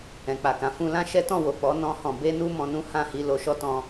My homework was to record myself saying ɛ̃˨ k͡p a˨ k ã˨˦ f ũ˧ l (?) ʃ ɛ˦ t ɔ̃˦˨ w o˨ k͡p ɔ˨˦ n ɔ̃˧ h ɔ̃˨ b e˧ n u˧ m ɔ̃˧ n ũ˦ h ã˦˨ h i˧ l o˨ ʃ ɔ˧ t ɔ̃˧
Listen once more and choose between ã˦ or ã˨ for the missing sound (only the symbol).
ã˦